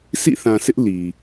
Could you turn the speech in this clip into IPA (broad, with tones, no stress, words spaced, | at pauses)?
sʰḭ˦˨θã˨sʰɪ˦ʔ li˨